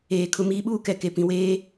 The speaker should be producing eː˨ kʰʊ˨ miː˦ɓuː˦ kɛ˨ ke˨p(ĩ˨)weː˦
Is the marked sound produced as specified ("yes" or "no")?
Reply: yes